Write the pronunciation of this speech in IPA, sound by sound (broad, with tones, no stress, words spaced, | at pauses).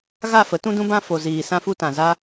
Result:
ɣa˦˨fə˨˦ tũ˧dũ˧bã˧ fo˨ziː˨ sã˧fu˧tã˨ za˧